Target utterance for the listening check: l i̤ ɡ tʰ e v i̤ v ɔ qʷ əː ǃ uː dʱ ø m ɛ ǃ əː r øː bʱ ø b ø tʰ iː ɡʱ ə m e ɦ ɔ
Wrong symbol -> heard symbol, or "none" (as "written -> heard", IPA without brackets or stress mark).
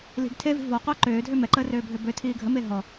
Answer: uː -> øː